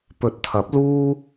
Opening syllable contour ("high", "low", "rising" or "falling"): rising